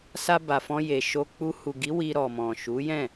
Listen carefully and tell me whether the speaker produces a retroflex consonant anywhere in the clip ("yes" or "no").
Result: no